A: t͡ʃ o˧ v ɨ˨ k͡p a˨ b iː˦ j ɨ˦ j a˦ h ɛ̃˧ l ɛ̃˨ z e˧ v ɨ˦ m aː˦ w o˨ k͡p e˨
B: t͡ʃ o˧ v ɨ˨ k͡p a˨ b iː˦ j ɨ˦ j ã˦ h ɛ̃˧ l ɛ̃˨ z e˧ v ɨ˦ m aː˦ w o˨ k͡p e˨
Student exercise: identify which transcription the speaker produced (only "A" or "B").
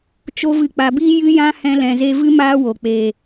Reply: B